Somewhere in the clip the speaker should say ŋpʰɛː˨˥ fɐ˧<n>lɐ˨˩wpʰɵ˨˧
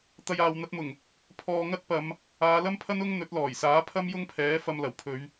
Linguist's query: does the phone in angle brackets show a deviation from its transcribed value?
yes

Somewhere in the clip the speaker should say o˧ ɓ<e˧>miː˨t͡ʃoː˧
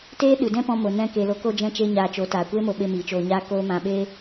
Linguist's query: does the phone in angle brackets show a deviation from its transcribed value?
no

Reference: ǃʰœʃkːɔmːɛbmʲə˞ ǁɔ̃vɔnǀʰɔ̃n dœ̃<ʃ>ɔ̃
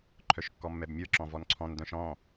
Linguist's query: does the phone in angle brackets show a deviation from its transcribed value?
no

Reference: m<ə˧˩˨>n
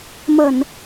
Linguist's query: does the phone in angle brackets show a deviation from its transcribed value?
no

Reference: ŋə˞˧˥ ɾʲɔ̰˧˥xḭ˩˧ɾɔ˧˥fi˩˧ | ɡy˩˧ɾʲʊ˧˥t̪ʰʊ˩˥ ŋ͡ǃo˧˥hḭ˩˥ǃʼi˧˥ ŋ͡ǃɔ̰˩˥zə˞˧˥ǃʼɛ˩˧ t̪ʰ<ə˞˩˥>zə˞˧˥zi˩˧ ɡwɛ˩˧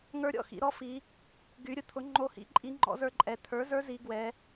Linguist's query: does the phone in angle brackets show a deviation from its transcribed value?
no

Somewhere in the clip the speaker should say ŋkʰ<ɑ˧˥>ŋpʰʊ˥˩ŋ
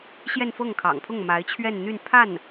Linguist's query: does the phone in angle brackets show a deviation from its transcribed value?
yes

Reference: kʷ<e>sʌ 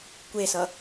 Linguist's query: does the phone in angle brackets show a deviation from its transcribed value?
no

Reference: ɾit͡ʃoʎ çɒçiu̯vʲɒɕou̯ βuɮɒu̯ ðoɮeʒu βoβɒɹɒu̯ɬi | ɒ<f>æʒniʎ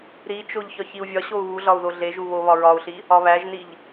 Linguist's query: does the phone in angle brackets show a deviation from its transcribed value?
yes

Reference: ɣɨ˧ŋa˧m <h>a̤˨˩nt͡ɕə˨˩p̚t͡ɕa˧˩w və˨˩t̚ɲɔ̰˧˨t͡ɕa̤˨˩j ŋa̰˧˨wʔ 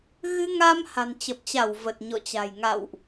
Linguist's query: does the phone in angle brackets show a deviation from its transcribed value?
no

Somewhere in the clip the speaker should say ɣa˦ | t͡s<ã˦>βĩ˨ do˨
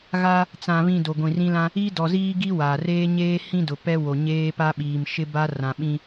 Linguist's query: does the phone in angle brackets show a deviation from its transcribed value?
yes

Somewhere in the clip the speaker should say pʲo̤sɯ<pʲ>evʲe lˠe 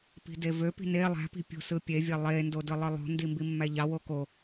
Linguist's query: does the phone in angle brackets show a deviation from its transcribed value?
no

